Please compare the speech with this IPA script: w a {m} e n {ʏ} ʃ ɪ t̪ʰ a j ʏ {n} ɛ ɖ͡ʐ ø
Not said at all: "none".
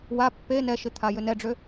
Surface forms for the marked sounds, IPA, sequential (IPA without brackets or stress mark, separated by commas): pː, ɛ, n